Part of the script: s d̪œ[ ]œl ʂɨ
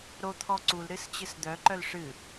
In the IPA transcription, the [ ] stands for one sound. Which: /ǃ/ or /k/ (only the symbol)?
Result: ǃ